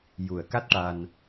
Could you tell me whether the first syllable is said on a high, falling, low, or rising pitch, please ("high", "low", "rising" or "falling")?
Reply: low